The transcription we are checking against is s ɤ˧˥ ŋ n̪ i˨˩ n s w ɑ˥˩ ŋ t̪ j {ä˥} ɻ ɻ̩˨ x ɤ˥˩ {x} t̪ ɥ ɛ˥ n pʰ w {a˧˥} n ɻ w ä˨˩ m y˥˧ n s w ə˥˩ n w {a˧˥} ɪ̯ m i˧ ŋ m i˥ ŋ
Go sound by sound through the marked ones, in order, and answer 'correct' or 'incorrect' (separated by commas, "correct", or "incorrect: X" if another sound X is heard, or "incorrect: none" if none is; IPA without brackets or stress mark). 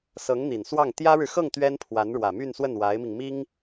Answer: correct, incorrect: ŋ, correct, correct